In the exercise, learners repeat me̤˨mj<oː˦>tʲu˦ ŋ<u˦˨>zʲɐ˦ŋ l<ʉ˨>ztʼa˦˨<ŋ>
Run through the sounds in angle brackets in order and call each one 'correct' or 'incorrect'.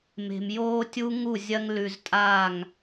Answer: correct, correct, correct, correct

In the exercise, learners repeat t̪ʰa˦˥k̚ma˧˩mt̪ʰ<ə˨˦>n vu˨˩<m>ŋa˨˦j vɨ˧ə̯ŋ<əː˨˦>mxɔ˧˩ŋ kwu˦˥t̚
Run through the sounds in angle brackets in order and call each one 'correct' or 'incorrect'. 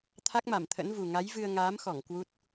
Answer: incorrect, incorrect, incorrect

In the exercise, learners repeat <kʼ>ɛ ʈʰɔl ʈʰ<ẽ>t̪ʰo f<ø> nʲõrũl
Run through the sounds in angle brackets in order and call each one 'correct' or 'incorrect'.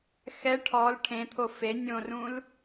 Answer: incorrect, correct, incorrect

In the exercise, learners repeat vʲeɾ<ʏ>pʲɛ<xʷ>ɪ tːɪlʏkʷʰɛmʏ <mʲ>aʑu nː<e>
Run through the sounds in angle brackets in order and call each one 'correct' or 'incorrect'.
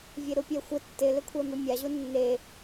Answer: incorrect, correct, correct, correct

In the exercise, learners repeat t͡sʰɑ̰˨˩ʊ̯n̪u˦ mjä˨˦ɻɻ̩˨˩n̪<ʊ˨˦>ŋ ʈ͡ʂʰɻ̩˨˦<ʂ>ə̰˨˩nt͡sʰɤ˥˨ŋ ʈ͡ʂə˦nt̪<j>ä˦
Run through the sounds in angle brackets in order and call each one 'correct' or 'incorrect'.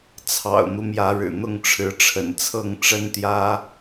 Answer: incorrect, incorrect, correct

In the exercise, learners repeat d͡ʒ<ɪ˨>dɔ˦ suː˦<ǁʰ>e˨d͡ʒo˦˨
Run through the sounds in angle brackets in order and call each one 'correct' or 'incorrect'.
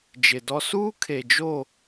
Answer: correct, incorrect

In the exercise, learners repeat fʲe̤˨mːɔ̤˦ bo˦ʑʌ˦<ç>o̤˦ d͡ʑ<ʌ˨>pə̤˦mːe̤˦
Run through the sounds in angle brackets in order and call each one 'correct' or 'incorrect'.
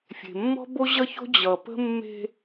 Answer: correct, correct

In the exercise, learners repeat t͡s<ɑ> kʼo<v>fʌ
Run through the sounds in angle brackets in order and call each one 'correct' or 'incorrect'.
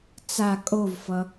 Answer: incorrect, correct

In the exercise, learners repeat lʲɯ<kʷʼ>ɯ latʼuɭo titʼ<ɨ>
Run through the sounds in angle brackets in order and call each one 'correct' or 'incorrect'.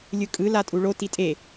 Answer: incorrect, incorrect

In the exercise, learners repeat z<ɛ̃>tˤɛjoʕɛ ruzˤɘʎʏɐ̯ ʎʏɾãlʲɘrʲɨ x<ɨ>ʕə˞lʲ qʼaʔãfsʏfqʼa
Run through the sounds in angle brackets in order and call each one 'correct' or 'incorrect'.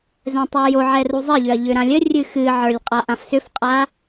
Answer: correct, correct

